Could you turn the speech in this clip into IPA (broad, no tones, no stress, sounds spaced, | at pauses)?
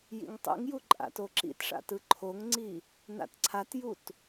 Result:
j ḭ ŋ tˤ ḭ ŋ j u ǃʼ a̰ t o ǁ ḭ t ʂ a̰ t ɯ ǃʰ o ŋ ŋ͡ǀ i | n a̰ t ǀʰ a t j u t